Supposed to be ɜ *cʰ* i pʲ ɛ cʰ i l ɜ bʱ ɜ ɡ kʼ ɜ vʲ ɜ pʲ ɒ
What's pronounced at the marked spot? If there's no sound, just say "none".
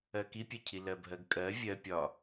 k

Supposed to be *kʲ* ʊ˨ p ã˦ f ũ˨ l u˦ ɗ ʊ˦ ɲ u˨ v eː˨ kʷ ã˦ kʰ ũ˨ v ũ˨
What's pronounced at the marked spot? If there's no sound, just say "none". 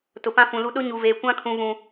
t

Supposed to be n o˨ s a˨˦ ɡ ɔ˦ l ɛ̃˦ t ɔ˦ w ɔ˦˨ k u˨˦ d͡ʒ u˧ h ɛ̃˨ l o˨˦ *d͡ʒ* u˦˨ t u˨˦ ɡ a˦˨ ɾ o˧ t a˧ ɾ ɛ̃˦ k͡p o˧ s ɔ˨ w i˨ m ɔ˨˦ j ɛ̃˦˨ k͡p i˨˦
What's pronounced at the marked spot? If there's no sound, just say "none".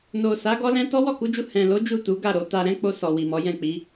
d͡ʒ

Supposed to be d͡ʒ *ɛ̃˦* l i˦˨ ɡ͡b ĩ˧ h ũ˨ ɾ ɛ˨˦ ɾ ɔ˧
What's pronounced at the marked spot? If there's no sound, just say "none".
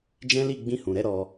ɛ̃˦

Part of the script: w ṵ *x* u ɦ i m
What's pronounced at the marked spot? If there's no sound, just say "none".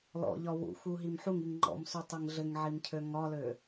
x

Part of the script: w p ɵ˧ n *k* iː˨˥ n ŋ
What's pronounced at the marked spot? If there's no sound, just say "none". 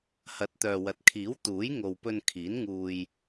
kʰ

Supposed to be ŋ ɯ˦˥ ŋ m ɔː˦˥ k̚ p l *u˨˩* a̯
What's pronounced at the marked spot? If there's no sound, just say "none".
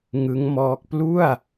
u˥˩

